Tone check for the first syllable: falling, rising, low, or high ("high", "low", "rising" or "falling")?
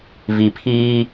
low